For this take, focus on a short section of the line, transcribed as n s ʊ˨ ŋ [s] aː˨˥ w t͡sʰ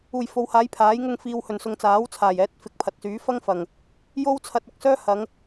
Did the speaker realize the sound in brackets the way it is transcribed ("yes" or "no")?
no